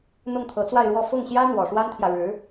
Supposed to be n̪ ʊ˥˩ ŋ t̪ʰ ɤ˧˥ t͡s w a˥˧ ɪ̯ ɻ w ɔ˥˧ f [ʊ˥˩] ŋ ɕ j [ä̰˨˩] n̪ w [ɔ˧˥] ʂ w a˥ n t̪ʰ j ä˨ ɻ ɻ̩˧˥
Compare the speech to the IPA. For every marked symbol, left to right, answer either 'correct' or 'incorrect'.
correct, incorrect, incorrect

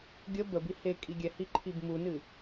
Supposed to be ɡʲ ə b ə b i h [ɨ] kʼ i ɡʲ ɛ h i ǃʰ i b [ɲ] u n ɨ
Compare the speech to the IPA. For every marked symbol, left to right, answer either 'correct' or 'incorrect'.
incorrect, incorrect

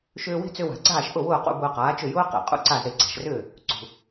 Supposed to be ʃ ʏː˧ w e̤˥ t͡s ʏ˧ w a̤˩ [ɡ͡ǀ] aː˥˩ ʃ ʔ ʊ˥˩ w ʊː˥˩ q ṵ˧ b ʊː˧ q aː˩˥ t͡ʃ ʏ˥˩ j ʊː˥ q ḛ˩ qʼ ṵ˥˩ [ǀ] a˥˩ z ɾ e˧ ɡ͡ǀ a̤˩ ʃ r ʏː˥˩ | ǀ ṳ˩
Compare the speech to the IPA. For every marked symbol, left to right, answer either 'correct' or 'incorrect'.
correct, correct

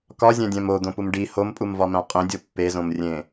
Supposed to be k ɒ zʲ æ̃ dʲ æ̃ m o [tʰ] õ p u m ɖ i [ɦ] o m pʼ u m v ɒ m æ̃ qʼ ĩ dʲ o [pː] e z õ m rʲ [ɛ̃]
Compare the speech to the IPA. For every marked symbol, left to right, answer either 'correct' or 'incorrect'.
incorrect, incorrect, correct, incorrect

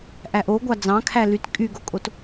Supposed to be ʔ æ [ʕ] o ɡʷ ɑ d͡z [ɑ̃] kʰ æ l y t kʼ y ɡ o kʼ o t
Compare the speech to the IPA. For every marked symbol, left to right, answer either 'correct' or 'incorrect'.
incorrect, correct

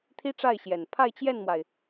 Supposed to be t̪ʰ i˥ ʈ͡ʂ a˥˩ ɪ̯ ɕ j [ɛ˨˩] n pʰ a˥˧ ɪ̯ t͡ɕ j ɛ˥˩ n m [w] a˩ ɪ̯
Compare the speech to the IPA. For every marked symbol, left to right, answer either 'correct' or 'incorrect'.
correct, correct

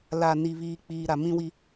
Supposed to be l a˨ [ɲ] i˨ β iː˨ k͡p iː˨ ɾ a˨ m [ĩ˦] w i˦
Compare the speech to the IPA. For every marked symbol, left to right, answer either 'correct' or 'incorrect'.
incorrect, correct

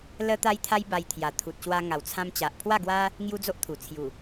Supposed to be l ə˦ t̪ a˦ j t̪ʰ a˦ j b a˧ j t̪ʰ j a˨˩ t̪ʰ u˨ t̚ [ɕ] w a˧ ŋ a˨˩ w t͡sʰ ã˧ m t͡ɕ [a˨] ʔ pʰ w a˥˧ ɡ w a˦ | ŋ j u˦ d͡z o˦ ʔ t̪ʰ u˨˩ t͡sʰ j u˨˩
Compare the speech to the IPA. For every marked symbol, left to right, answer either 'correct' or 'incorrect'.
correct, correct

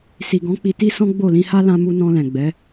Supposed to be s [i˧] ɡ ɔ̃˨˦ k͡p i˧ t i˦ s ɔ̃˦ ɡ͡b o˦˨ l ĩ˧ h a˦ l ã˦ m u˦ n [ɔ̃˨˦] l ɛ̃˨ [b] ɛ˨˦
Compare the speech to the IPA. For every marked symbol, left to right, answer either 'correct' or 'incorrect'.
incorrect, incorrect, incorrect

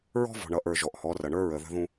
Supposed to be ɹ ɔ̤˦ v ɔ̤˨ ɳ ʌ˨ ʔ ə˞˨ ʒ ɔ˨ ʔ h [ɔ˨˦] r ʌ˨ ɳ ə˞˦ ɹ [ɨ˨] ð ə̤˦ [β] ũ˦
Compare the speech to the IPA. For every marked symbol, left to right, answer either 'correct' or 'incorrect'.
correct, incorrect, incorrect

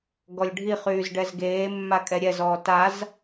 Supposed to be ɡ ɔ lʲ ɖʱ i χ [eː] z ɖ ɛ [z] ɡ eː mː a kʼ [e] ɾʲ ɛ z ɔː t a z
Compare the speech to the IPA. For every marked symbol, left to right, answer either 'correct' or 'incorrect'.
incorrect, correct, incorrect

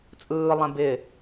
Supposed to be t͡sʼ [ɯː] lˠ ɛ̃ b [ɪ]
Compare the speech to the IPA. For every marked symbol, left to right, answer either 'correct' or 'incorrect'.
correct, correct

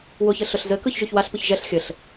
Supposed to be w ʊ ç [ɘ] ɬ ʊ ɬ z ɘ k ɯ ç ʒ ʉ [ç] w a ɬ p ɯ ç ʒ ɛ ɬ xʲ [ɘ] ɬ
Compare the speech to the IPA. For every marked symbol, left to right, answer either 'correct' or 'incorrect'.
correct, correct, correct

